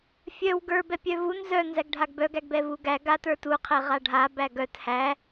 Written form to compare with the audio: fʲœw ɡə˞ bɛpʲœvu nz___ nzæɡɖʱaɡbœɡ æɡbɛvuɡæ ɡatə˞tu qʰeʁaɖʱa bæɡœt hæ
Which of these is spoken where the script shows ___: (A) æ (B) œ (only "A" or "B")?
B